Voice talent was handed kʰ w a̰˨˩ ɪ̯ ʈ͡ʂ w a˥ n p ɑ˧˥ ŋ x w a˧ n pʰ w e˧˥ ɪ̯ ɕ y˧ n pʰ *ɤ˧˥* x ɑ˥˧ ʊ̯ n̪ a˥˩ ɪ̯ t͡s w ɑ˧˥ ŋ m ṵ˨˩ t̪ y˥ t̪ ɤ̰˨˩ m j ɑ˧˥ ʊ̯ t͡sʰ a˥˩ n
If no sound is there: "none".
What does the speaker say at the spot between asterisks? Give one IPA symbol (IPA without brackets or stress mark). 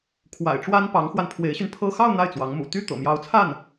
ɤ˥˧